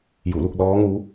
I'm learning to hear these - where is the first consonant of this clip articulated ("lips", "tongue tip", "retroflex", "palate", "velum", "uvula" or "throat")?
palate